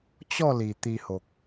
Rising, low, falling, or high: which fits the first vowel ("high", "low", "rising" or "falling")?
falling